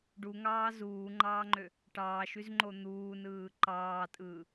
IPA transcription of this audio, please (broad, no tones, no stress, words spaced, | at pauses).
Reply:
ɖuŋɑː zuːŋ͡ǃɑːŋ͡ǃø | ʈɑːʃyzŋ͡ǃo n̪uːnɯː ǃɑːtʼɯː